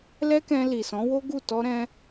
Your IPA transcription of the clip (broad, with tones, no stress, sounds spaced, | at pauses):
l ɛ˦ k ɛ̃˧ l i˨ s ɔ̃˨˦ w o˦ ɡ u˦˨ t ɔ˧ ɾ ɛ̃˧